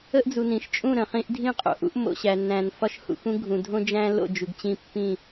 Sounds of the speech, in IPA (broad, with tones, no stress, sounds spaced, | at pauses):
ə˦ ʔ d͡z u˨ n ĩ˨ ʃ t͡ʃʼ ũ˦˨ ɾ ə̃˨ χ ĩ˦ ʔ dʱ ĩ˦ qʼ o̰˨ ʔ ṵ˦ ʔ m o̰˨ ɕ æ˨ nː æ̃˨ n f ɒ˦ ʃ h ṵ˨ x ũ˦ ɡʱ ũ˨ dʱ õ˦ d͡ʒ æ̃˦ l o̰˦˨ d͡ʒ u˨ ɡ t͡ɕ ĩ˦˨ pː ĩ˦˨